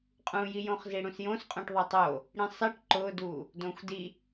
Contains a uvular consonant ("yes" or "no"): yes